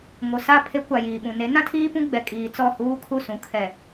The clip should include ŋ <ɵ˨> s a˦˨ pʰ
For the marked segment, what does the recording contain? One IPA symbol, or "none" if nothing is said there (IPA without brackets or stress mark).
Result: o˨